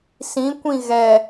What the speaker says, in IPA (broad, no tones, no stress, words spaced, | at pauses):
sĩkʷĩ ɣɛ